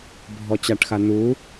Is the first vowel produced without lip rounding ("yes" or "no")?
no